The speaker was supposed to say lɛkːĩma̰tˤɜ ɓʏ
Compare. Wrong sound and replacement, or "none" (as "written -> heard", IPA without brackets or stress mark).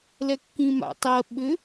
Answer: none